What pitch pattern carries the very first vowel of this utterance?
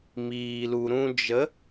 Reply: low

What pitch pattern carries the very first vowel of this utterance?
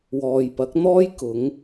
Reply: low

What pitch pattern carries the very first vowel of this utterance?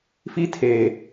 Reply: high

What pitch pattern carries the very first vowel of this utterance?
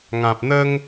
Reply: low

